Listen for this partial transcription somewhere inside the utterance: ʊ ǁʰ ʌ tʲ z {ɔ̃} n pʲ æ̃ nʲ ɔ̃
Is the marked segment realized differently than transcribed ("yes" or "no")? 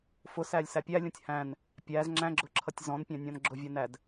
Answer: no